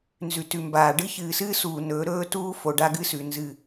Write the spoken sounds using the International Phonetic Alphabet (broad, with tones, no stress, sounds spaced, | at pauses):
n z ʉ˨ t ʉ˨ m b aː˨ ɖ ɨ˦ ç ɨː˨ s ɨː˦ s uː˨ n ɵː˨˦ ɾ ɵː˦ t uː˦ f o˨ ɖ a˦ ɡ ɨ˦ s ʉ˨ n z ɨ˦˨